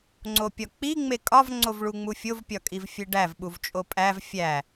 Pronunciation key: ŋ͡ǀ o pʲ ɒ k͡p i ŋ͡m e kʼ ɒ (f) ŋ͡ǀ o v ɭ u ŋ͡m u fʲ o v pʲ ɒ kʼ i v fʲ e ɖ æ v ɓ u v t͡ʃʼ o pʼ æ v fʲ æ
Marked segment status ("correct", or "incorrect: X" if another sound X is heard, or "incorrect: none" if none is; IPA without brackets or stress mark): incorrect: v